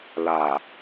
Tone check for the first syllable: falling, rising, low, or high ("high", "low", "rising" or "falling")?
low